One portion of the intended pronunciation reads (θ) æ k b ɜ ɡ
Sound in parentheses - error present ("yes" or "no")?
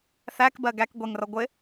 no